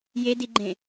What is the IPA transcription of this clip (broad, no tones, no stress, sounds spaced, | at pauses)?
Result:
j e d i ɡ͡ǃ ẽ